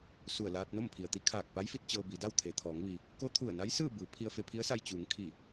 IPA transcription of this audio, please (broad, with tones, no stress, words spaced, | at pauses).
su˧˩ə̯laː˧t̚ no˥˨mpʰi˩ə̯t̪i˧˥ kʰaː˧˩k̚pa˧˥jfi˧t̚ t͡ɕɤː˧bi˩˧da˥˨w t̪ʰe˩t̪ʰɔː˩˧ŋʋi˩ | ko˧˥t̪ʰu˧˩ə̯na˧˥j sɯː˥˨bɯː˩˧ pʰi˧ə̯fe˧pʰi˧˥ə̯sa˧j t͡ɕuː˩˧ŋ kʰi˧˩